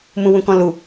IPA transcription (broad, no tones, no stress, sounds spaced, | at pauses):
m ũ w ũ k ɔ̃ l u